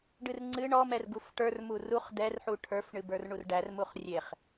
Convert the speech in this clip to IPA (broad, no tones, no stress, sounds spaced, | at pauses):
ɖ ɨ r ŋ͡ǀ ɨ ɳ ɔ m ɛ r ɡ u f ʈ ə˞ r m u r u χ d ɛ r ħ u ʈʰ ə˞ f ɳ ɨ b ə˞ r ɳ u r ɖ æ r m u χ rʲ e χ